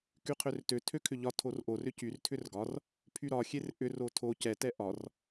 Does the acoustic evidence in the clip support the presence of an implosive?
no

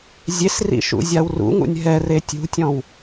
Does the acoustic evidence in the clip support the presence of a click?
no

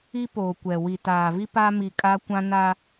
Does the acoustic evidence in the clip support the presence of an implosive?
no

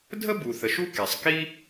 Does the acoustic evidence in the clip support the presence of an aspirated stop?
no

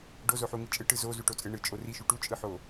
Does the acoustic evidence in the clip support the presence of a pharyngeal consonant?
yes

